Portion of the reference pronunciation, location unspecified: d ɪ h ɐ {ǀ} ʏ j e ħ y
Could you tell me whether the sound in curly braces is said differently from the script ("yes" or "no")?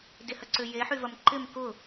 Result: no